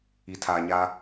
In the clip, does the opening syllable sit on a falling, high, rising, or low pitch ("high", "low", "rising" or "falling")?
low